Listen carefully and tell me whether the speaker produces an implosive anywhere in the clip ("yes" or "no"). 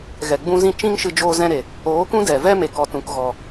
no